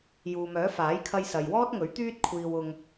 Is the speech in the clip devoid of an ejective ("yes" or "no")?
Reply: yes